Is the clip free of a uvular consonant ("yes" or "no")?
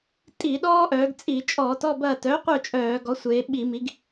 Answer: no